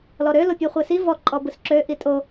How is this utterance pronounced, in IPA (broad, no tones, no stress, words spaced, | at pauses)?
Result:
lɔɾø lopʲɛχʷɛsi vɔ ǃʼɔbɯsǁø ʔitʼo